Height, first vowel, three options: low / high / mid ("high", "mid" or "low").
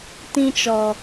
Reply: high